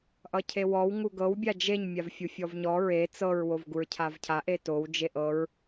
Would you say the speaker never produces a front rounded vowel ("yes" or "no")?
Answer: yes